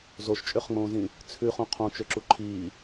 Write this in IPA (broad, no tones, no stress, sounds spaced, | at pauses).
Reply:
z o ʃ t͡ʃʼ ø χ ŋ͡m õː z ĩ | t͡sʰ ʉ χ ũ qʰ õ t͡ʃ ø ǁ u ǃʰ iː